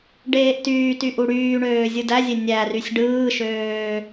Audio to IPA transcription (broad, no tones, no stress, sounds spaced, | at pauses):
ɖ eː ʔ t yː t y ʔ u ɽ yː ɳ øː zʲ ɯ d æ zʲ e nʲ æ r y sʲ ɖ ɯː ʃ øː